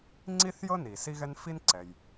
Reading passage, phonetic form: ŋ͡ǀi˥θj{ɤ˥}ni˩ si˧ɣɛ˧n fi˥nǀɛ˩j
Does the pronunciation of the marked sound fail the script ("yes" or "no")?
no